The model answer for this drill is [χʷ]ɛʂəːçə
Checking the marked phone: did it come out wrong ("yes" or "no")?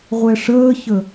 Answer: yes